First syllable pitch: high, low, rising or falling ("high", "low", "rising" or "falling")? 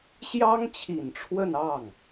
high